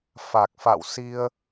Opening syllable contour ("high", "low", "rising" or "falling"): low